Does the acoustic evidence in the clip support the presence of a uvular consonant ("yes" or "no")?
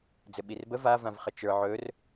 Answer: yes